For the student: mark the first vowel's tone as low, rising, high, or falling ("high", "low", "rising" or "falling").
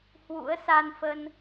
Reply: rising